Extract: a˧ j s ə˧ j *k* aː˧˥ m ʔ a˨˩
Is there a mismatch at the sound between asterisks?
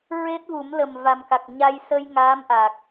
yes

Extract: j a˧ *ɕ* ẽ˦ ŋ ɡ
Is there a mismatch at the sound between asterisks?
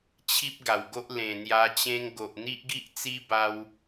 yes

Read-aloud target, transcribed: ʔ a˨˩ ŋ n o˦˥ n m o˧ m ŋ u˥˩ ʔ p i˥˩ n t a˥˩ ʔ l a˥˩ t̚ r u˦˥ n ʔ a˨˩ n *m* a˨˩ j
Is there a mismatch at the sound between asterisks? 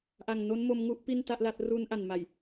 no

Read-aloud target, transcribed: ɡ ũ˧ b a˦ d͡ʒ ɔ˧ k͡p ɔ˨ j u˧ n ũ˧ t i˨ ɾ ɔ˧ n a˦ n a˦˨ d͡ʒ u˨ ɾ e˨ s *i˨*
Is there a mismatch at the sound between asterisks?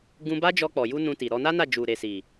no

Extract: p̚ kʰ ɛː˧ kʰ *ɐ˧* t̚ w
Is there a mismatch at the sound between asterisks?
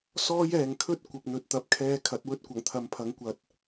yes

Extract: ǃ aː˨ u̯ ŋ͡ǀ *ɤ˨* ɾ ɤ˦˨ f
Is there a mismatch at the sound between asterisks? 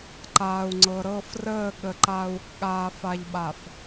no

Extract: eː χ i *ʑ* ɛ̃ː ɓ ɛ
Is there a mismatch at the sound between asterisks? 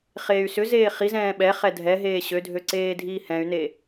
yes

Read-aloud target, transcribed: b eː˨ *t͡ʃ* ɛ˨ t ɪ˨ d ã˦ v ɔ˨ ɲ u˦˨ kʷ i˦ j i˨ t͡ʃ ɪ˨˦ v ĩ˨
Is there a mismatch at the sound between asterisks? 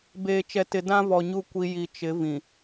no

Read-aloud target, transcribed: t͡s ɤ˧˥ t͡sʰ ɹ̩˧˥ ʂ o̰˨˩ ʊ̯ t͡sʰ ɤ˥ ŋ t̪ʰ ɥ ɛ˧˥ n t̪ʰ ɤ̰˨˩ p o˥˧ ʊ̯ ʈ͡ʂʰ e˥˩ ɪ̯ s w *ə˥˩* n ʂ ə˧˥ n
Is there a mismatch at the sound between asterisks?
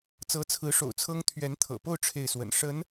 yes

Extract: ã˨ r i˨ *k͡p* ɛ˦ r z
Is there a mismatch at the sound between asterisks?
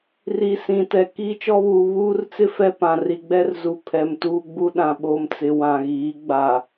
yes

